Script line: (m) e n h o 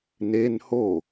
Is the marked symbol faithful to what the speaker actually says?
no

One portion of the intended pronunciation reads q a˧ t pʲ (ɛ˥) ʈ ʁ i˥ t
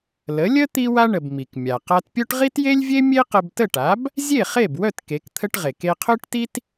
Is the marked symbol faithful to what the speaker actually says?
no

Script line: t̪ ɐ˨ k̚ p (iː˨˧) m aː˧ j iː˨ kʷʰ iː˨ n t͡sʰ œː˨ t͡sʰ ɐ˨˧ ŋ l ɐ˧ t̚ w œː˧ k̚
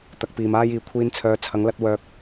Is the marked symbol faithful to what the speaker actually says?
no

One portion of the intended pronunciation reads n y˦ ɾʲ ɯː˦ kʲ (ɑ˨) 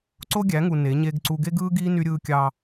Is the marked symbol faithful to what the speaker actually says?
no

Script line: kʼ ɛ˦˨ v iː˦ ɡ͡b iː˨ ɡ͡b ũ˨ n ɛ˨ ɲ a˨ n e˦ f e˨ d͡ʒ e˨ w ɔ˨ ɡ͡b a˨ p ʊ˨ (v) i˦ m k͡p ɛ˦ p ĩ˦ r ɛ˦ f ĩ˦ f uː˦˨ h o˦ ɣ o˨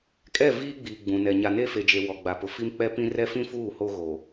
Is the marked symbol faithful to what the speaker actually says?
no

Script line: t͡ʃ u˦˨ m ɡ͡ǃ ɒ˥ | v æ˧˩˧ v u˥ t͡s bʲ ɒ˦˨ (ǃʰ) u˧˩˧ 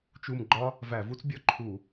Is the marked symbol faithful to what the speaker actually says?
yes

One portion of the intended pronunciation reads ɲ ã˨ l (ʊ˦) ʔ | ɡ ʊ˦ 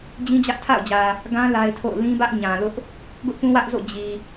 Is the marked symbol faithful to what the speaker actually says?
yes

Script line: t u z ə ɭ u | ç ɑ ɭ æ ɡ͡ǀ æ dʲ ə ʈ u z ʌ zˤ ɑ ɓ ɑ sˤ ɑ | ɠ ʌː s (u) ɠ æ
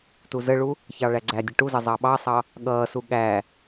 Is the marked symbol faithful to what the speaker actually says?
yes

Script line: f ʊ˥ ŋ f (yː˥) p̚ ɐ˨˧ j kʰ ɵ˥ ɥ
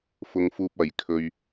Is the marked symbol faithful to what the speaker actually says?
no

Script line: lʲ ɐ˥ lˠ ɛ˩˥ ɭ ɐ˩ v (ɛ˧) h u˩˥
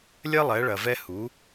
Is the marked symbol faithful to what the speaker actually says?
yes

